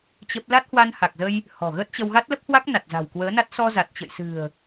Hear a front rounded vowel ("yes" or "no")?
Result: no